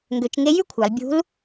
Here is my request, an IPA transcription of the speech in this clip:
ŋ ɡ ø˩˧ t͡ʃ ŋ e˧˥ j y˥ kʷʰ ɑ˩˧ l bʲ ṳ˧˥ l

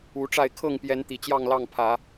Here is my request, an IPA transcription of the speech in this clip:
u˨˦ ʈ͡ʂ a˥˨ ɪ̯ kʰ ɤ˥˨ ŋ p j ɛ˨˦ n t̪ i˨˩ t͡ɕ j ɑ˥˨ ŋ l ɑ˥˨ ŋ pʰ ä˨˦

